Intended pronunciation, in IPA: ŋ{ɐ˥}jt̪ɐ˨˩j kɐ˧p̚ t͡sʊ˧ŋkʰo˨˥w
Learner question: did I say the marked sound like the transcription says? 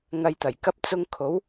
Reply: no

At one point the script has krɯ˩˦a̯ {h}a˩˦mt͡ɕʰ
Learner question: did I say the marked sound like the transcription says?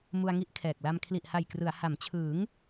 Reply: yes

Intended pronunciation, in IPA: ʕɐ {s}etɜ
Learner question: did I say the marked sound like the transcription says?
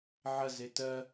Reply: no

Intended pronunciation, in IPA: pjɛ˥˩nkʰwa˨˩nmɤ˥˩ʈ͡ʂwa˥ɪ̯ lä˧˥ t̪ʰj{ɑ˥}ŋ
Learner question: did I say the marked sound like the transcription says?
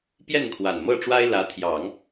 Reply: no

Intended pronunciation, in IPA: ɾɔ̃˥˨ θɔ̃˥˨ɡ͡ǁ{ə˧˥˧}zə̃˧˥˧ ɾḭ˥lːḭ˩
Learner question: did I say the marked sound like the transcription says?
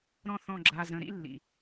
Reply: no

